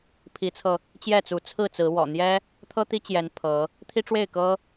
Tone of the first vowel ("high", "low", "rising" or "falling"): rising